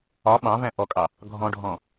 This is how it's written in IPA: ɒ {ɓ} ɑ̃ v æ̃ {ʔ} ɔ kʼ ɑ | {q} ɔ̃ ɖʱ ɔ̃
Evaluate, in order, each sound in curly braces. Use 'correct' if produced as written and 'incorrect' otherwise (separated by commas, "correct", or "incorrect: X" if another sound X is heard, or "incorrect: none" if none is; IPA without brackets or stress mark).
correct, correct, incorrect: ɡʱ